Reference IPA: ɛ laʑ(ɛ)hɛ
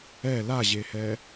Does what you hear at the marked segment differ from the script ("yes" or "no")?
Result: yes